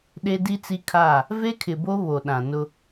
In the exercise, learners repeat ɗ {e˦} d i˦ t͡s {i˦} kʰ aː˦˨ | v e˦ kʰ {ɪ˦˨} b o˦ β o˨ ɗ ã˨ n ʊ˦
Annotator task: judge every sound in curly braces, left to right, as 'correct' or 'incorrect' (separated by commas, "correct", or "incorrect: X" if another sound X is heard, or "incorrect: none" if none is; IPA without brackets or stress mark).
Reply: correct, correct, incorrect: ɪ˨